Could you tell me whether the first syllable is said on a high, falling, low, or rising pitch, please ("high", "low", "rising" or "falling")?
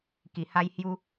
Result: low